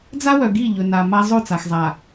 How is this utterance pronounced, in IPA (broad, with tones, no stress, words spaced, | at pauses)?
d͡za˦wœ˨ɡi˦˨ ʎɵ˨na˨ma˦ zˤo˦˨t͡sa˨xzˤa˨